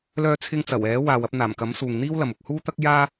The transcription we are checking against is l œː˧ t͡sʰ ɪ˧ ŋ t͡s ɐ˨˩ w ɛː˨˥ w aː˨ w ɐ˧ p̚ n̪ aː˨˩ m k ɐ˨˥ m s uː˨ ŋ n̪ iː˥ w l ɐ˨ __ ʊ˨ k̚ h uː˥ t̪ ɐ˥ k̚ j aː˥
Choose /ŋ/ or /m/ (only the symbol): m